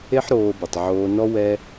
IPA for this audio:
e˦ ħ ɾ oː˧ b ɨ˨ tˤ ʕ oː˧ n ɔ˦ w ɛ˦

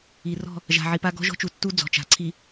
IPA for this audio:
i˨ r ɔ̤˦˨ | ʒ a̤˨ ʕ i˨ p a˦ ɡ ɔ̤˦ ʒ ɔ̤˦ t͡ʃ u˨ tː u˦ d͡z ɔ̤˨ t͡ʃ a̤˨˦ ǀʰ i˨

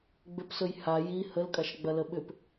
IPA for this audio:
ɡ͡b ʏ p s ɵ j h a j i h ə l kʼ a ʃ ɡ͡b ɐ l ə ɓ ʏ p

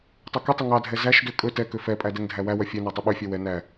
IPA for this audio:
tˤ ɛ k ɵ tˤ ɵ ŋ ɑ dʱ ɛ z æ ʃ d ø kʼ ɵ t ɛ k ø f ɛ pʼ æ d ɛ ŋ dʱ æ w æ w œ fʲ ɛ n æ tˤ ɵ ɓ ø fʲ œ w ɛ n æ

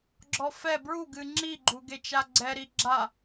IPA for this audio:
ɡ͡ǁ ɔ f ɛ b ɹ u ɡ ɨ ŋ͡ǁ i ɡ͡ǃ u ɡ e t͡ʃ a ɡ͡ǀ ɛ ɾ i ɡ͡ǁ a

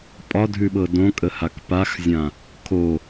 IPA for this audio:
pʼ ɒ dʱ ʉ ɓ ɤ d õ kʼ ə h a k p a x zʲ ã | kʰ o

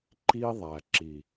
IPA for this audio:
ǃ i˦ ðˤ æ˨ ǁ i˨

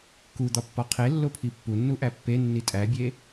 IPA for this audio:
k u d̪ ɒ pː ɒ qʰ e lː o pʰ i pː u nː u ʔ æ pː e nː i tʼ æ bʲ e

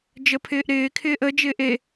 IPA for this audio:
d͡ʒ ə pʰ ɪː ʔ ɾ ɪː kʰ ɪː ʔ ə d͡ʒ ɪː ʔ e

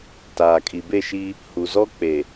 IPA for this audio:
t aː˨ kʼ i˨ b e˦˨ ʃ i˦ | h u˨ z ɔ˦ k͡p e˨

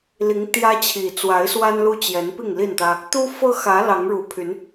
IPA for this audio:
l i˨˦ ŋ t̪ j ä˦ t͡ɕʰ i˨˩ t͡s w a˨˦ ɪ̯ s w a˦ n l u˦ t͡ɕ j ɛ˨˦ n p i˥˨ ŋ l i˥˨ n t̪ ä˦ | t̪ u˦ f ɤ˦ x ä˨˦ l ɑ˨˦ ŋ ɻ u˨˩ pʰ y˨˦ n

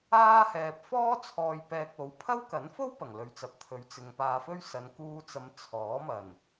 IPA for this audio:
aː˥ h ɛː˧ p̚ f ɔː˥ t͡sʰ ɔː˧ j p ɛː˧ k̚ o˨˧ w pʰ ɐ˥ w k ɐ˨˥ n f o˥ w p ɐ˨˩ ŋ l ɵ˨˧ ɥ t͡s ɐ˨ p̚ t̪ʰ ɵ˨˥ ɥ t͡s ɪ˨ ŋ p aː˧ f ɵ˥ ɥ s ɐ˨ n k uː˧ t͡s ɐ˨˧ m t͡sʰ ɔː˨˥ m ɐ˨˩ n

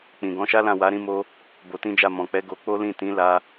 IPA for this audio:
k͡p ĩ˨ ɡ ɔ̃˨˦ ʃ a˦ l ã˦˨ w a˨˦ ɾ ĩ˧ m o˧ | b o˧ t ĩ˦ d͡ʒ a˦˨ m ɔ̃˨ k͡p ɛ˨˦ ɡ o˧ k͡p o˦ l ĩ˦˨ t ĩ˨˦ l a˧

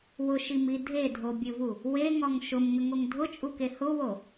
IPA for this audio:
w ʊ ʃ i m i dʱ e dʱ o bʲ ɘ v u | w e ŋ ɔ ŋ ʃ ʊ m ŋ ə ŋ o ŋ dʱ ʊ t͡ʃʼ u k e h ʊ w o

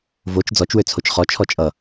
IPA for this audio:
v o t͡ʃ d͡z ɔ t͡ʃ w ø t͡sʰ o t͡ʃ χ ɔ t͡ʃʰ ɔ t͡ʃʼ ʌ

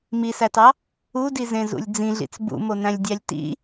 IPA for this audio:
m i s æ t ɑ | u d i z ẽ z ṵ lʲ d͡z ĩ ɮ ḭ t͡s b ṵ m o n æ̃ lʲ dʲ æ lʲ t ḭ

